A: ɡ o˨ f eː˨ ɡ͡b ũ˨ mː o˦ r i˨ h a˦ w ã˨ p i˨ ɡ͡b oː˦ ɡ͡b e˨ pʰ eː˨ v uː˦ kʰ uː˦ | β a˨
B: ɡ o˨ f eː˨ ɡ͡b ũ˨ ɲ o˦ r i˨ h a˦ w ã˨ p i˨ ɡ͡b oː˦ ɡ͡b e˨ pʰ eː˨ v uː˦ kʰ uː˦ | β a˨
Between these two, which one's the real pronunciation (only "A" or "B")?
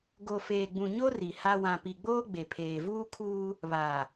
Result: B